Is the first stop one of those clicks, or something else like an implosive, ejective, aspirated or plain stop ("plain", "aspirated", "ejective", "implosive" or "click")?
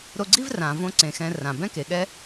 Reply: click